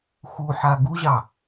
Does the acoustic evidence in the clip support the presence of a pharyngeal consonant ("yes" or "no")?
yes